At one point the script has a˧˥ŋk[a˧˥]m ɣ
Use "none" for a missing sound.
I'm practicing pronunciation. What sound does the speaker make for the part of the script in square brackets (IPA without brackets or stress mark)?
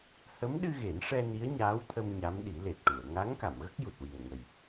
a˨˩˨